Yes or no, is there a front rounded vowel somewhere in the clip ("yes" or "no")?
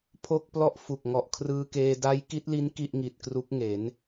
no